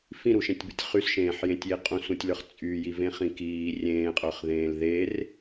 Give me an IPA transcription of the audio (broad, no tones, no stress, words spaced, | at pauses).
fĩɾuʃẽtʲbɨtʲ χysʃẽːħjẽtʲji qʼũsũtʲlə˞χ t͡sʼyjivẽχĩ kiː rʲẽːqʼə˞χðẽːl ðer